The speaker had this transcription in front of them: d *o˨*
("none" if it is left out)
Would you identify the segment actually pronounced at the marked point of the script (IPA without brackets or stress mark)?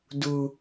u˨